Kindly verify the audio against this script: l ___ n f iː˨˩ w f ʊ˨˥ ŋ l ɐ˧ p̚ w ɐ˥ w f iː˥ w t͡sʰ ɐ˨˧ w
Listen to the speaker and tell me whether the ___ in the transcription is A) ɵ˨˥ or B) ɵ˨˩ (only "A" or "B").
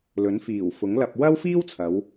A